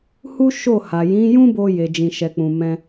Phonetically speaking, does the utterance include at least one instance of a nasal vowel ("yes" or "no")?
yes